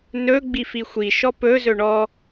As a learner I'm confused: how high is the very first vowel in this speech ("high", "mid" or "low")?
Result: mid